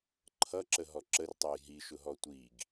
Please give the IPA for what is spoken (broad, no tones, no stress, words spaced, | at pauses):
ǃʰʌǁəɦɔ ǁərtˤɜj ɦiʃʊɦɔ tʷiɡ